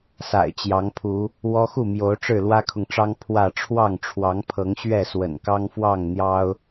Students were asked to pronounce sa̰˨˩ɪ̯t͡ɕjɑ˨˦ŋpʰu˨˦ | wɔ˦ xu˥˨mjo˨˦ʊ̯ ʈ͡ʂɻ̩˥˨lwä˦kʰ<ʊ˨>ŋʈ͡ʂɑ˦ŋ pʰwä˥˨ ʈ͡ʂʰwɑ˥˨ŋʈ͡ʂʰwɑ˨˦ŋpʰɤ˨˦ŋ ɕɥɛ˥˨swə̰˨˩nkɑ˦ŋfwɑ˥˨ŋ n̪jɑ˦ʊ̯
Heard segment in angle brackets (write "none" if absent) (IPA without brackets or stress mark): ʊ˨